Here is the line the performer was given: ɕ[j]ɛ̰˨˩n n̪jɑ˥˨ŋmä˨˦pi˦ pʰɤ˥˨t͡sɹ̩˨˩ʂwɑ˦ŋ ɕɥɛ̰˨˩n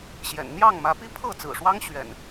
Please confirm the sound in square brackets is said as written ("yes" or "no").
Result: yes